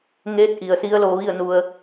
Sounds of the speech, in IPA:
ŋ eː˧˥ t̚ ʔ i˩ ə̯ s i˧˥ ə̯ l oː˧ ʋ i˥˨ ə̯ n u˧ ə̯

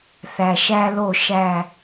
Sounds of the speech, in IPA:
θ æ˨ ʃ æ˦ l o˦˨ ʃ æ˦˨

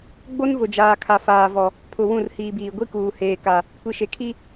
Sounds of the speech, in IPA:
ɡ͡b o˦ n v ʊ˨ d͡ʒ aː˨ kʰ a˨ f aː˨ v ɔ˨ | pʰ ʊ˨ w ũ˦˨ r h iː˨ b iː˨ ɡʷ i˦ k uː˨ h eː˨ k a˨ | kʷ i˨ ʃ e˨ kʰ i˦

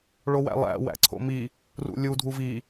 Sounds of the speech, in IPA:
ɭ o w æ̰ lˠ æ̰ w æ̰ ǀʰ o̰ m i | r ṵ lʲ u dʱ u v i

